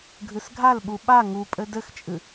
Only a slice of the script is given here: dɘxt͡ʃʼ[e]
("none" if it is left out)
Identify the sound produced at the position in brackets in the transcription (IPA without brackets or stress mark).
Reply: ɨ